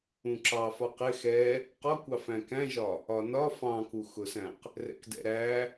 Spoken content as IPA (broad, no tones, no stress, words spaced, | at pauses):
ũǁɑ fɒqɪ xɛ | qɒkʷɑ fæ̃kæ̃ʒɒ | ɒnɒ fɑ̃kuxʊsæ̃q | rɛ̰kdɛ̰ɾæ